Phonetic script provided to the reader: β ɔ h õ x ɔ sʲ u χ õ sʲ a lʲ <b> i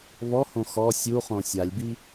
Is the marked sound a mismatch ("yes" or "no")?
no